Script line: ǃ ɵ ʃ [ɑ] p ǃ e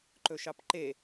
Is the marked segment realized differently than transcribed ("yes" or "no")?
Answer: no